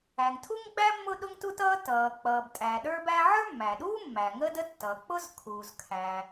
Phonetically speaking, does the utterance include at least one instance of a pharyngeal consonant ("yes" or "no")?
yes